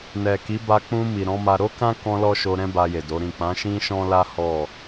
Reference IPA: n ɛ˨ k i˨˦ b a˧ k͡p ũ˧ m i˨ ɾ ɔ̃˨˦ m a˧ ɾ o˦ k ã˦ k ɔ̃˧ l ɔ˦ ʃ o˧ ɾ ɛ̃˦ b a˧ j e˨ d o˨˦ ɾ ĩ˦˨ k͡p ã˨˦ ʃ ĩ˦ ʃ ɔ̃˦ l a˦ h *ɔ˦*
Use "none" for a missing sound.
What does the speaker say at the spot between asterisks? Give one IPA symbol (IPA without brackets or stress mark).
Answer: ɔ˦˨